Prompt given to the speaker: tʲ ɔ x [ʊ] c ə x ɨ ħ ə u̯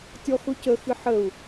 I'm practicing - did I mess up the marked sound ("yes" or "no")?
no